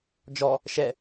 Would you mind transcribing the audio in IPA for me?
d͡ʒɔ | ʃɛ

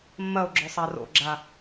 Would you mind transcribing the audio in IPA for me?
mːɐo̯ɡ͡ǁɵ sˤaro̰ɡ͡ǁa

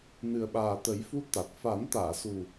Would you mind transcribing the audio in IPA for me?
nɨ˨˩ə̯ɓaː˨˩t̪ə˨˩˦jfu˧ t̪a˨˩t̚ fa˨˩˦n t̪aː˨˩˨su˨˩

